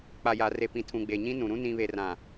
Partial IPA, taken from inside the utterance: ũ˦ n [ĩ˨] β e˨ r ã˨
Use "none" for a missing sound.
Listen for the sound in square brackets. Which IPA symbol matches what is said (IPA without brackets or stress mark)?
ĩ˨